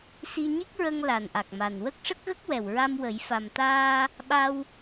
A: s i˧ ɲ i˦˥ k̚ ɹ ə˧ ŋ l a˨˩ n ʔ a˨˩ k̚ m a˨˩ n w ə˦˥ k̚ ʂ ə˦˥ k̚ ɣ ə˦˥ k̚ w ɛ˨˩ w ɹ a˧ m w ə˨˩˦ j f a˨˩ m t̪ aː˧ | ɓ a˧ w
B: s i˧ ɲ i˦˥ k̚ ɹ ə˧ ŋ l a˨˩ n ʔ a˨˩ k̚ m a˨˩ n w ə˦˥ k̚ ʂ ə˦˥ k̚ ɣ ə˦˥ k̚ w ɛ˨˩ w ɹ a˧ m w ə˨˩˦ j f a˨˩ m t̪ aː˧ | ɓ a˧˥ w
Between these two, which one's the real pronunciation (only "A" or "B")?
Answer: A